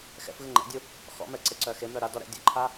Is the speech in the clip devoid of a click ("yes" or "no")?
no